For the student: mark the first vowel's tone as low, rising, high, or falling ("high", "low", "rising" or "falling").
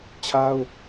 high